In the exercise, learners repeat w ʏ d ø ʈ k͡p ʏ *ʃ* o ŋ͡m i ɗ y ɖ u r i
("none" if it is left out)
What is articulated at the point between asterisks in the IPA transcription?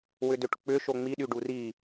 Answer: ʃ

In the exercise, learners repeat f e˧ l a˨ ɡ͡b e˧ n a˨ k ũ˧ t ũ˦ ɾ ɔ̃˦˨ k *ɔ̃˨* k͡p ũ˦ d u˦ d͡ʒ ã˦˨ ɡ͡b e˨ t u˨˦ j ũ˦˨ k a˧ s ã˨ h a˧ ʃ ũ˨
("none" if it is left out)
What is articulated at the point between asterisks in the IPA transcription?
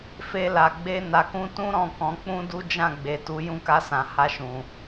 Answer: ɔ̃˨˦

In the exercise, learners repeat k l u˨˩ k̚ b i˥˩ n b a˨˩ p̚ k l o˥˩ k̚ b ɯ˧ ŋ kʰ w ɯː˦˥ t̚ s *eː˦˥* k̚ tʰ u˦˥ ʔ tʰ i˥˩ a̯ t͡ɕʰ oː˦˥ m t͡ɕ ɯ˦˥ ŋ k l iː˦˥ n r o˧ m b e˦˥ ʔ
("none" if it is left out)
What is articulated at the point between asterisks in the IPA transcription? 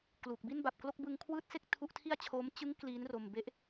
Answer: e˦˥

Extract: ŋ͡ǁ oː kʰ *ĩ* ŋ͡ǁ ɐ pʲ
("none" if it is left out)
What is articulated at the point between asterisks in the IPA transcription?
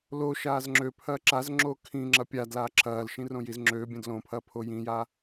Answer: ĩ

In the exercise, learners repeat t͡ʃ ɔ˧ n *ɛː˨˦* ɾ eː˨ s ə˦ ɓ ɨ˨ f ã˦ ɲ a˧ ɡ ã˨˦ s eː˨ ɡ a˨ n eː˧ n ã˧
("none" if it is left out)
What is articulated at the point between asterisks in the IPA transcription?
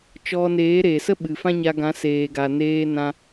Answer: eː˨˦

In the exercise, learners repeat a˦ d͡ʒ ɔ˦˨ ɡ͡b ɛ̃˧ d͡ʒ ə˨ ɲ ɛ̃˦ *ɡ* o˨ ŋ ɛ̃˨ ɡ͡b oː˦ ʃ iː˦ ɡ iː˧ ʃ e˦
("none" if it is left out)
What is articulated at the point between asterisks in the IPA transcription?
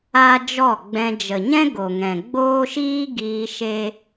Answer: ɡ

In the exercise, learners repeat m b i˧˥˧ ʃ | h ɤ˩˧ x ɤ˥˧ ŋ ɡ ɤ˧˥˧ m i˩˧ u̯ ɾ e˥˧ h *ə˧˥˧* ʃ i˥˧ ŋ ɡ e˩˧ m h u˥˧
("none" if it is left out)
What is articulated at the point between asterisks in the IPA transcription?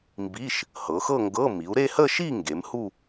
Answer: ə˥˧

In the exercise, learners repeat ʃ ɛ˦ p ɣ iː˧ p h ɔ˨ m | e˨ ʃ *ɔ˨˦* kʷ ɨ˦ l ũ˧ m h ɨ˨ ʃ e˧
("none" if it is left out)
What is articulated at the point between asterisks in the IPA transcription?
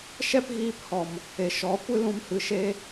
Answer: ɔ˨˦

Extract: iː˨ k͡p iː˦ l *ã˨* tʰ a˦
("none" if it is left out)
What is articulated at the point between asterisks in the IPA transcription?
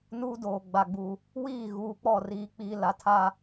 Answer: a˨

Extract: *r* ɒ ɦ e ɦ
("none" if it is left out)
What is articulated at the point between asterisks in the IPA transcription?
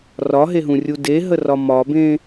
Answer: r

